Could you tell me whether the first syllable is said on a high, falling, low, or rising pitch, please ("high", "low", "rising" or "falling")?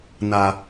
low